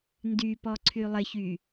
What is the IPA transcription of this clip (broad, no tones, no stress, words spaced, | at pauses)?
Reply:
ndypɔǀʰy lˠɪçy